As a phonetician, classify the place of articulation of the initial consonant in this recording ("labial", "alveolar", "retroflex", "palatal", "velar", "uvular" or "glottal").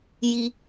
palatal